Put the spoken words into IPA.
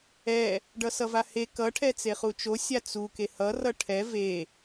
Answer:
ɛ | ɖ ʌ s ʌ v a h e k ʌ ʈʰ ɛ t͡s e χ u t͡ʃ o sʲ a t͡s u k e h ʌ r ʌ ʈʰ ɛ v e

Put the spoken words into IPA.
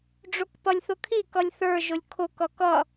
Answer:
ɖ͡ʐ o k p ʌ lʲ θ ʊ kʰ i k ʌ lʲ θ ə˞ ʒ ʊ lʲ kʰ ʊ k ʌ k ʌ

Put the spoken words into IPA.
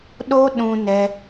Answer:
ɗ o˦ ɗ ũ˧ n ɛ˦

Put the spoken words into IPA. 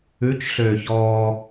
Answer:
ʉ t͡ʃ ɬ øː ç ɔː

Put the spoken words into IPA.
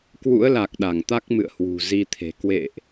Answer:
k w ṵ˧˥ ə̯ l a˨˩ k̚ ɗ a˧˩ ŋ t̪ a˦˥ k̚ m ɨ̰˧˨ ə̯ h w ṳ˨˩ z i˧ t̪ʰ e̤˨˩ k w ḛ˧˨ ʔ

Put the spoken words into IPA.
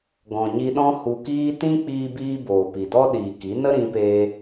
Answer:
ɡ ɔ̃˨ ɲ i˧ ɗ ɔ̃˦ h u˧ k iː˦ t ĩ˦ k͡p iː˧ b iː˧ b oː˨ p i˨ d ɔ˦ ɗ iː˨ k i˨˦ n ə˦ ɾ ĩ˧ p eː˧

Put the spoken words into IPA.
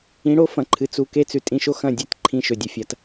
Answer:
ĩ˨˦ ɽ o˦ f ɐ̃˨ ǃʰ ɨ˨ t͡s u˧ k e˦ t͡s ʉ˨ tʼ ĩ˧ ʃ o˦ x ɐ̃˦˨ dʲ e˦ t ǃʰ ĩ˧ ʃ ɵ˨ dʲ ɵ˧ fʲ ɐ˧ t

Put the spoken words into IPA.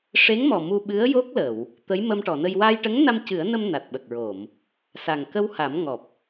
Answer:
ʂ e˧˥ ŋ m ɔ˨˩ m u˧ ɓ ɨ˧˥ ə̯ j o˦˥ k̚ l ə˨˩˨ w | t̪ ə˧˥ j m ə˧ m ʈ ɔ˨˩˨ n ə˧ j w a˧ j ʈ ə˧˥ ŋ n a˧ m c ɨ˨˩˦ ə̯ n ə˧ m n a˨˩ t̚ ɓ ə˨˩ k̚ ɹ o˨˩˨ m | s a˨˩ ŋ k ə˧ w h a˨˩˦ m ŋ ɔ˨˩ p̚

